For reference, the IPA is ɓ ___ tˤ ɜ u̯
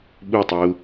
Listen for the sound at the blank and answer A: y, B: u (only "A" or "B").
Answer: B